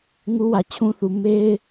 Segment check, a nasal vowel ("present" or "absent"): present